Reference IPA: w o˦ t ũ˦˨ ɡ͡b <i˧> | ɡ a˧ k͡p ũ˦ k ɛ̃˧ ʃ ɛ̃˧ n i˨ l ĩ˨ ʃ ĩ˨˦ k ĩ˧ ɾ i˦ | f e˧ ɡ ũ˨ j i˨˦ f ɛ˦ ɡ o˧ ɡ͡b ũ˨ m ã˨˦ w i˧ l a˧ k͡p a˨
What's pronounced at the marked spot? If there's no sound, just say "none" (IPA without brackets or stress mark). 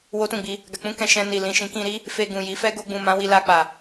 i˧